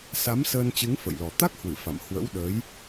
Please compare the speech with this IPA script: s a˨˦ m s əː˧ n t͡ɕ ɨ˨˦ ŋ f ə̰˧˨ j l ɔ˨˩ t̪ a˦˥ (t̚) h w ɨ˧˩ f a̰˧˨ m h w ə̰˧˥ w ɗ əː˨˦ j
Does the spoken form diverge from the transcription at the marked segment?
yes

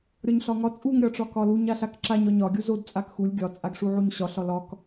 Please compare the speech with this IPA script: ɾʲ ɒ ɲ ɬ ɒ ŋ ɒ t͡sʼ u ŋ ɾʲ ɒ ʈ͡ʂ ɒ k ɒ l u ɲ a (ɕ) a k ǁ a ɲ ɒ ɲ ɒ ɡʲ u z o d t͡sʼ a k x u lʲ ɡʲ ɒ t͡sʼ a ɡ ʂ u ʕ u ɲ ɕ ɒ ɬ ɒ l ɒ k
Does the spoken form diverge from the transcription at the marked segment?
yes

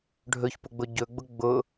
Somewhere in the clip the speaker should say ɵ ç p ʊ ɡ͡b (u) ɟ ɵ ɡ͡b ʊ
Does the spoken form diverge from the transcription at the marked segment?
yes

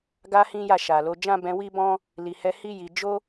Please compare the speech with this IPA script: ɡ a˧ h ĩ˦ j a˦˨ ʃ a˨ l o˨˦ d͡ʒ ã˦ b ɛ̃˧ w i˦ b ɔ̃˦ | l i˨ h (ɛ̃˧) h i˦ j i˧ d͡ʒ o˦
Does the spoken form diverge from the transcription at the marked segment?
yes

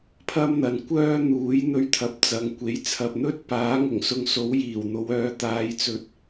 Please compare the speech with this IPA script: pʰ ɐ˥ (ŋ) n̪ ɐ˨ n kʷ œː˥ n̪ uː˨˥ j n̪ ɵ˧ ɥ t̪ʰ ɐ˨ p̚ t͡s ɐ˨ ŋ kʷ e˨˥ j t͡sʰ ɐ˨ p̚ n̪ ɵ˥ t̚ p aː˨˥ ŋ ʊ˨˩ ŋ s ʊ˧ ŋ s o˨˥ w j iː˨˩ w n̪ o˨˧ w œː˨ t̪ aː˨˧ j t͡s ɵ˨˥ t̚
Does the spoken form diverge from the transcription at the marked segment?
yes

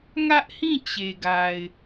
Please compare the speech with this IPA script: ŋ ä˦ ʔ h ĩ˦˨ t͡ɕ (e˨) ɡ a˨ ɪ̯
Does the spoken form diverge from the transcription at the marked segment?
no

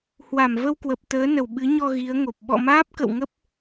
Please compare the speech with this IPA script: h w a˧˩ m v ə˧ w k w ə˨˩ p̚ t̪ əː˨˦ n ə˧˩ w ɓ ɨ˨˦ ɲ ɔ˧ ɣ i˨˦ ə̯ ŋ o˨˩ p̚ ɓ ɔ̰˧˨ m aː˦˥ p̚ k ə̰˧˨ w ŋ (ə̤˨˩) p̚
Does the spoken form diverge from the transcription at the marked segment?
yes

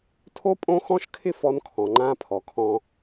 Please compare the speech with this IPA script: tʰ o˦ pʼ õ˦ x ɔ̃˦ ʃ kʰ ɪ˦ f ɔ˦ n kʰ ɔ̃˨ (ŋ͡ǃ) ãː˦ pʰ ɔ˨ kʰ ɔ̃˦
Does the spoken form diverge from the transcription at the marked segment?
no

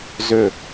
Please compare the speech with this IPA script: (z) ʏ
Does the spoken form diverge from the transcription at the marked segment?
no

